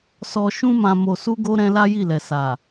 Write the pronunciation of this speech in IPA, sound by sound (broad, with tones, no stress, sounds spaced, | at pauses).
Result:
s ɔ˧ ʃ ũ˦ m ã˧ m o˧ s u˦ ɡ o˦ ɾ ɛ̃˦ l a˦ j i˦˨ l ɛ˨ s a˨